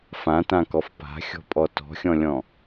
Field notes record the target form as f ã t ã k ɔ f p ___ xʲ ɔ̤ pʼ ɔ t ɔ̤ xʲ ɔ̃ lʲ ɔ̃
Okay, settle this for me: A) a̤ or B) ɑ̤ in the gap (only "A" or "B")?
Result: A